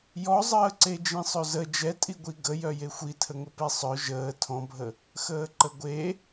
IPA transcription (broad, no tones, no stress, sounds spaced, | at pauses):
j ɔ zˤ əː ǀ e d͡ʒ ĩ sˤ ø z ə d͡ʒ ɛ tʼ i ɡʷ i ɡ ə j œ j e xʷ i tʰ ə ŋ ə p e sˤ œ ʒ əː tʰ ɔ̃ bʱ ə | x əː ǃ ə ɡʷ e